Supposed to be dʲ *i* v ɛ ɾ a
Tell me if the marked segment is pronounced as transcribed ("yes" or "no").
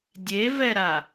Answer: no